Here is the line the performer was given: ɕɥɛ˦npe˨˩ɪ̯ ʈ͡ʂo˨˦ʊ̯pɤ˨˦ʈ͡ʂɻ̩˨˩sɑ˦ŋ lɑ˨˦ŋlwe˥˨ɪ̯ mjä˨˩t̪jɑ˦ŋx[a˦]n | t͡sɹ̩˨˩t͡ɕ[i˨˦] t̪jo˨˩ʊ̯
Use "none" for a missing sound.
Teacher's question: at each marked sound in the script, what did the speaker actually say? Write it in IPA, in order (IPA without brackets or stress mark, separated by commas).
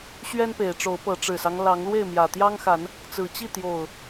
a˨˦, i˥˨